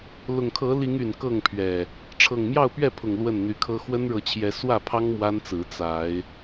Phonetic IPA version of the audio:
lʊ˨˩ŋkʰɤ˨˦li˨˦ŋ y˨˩nkɤ˥˨ŋpʰɥɛ˨˩ | ʈ͡ʂʰɤ˨˩ŋmjɑ˥˨ʊ̯pɥɛ˥˨pʰʊ˨˩ŋ lwə˥˨nn̪y˨˦kʰɤ˦ xwə˦nɻɤ˨˦t͡ɕʰjɛ˨˦ swä˥˨pʰɑ˦ŋ mwa˦nt͡sɹ̩˨˦ t͡sa˨˦ɪ̯

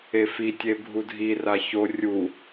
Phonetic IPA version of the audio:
efi tʲebʱudʱi raço rʲu

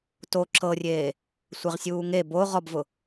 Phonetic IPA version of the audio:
to ǁʰɤrʲeː | sʷeʁsʲuːŋe bo ʁɔbvʊ

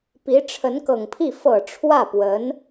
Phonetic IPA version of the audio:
pi˧˥ʈ͡ʂʰə˧˥nkɤ˨˩ŋpʰi˥˩ fɤ˨˩ ʈ͡ʂʰwä˥˩pwə˧˥n

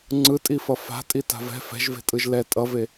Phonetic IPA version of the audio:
ŋ͡ǀɯtʼifʌ fa̤tʼita̤v ɛ̤ fɛ̤ʒve̤tʼɯʒ lɛ tʼʌve

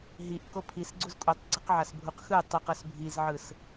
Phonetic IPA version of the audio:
ɦiʔko pʰisɡ͡ǀuz kʼutˤɡ͡ǀɯqʕasbʱuq xɯ tˤɯqʌs bʱizʕɯs

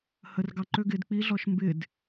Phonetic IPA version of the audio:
hər ɡɑǃø ɡɪd k͡piɮɔʃ mbɪd

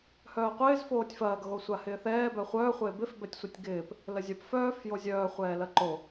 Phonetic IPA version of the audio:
hœːqʷɪːz foːtʲfɐːɡ ɣosʷahɪːθɛː bœχʷœː χʷɪːbɪf bɛtʲsʷitʲɡɪːp | ləzʲœp fœːf jozʲœː χʷɛːlɐǃo

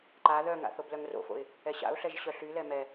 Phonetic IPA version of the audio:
ǃa ðœŋa̰ θoblœŋro̰fo̰ɪ̯ | ɛɕa̰ʊ̯ɬɛʒ ɕœɬylɛ mɛ

